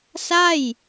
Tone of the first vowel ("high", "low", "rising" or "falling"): falling